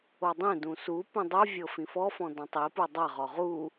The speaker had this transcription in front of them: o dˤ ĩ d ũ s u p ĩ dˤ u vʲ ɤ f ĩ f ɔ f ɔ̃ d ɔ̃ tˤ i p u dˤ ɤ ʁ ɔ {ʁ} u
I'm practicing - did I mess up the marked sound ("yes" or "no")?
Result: no